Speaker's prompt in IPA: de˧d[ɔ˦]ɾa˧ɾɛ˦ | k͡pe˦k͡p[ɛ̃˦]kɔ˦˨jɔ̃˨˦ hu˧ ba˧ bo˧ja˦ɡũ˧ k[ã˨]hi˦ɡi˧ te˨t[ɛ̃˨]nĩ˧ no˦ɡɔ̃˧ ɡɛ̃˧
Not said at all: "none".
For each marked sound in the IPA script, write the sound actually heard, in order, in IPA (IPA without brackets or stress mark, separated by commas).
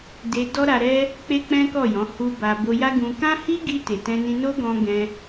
ɔ˦, ɛ̃˦, ã˦, ɛ̃˧